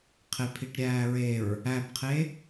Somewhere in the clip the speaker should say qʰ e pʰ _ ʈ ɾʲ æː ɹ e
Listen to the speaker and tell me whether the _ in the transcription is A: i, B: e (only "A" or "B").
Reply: A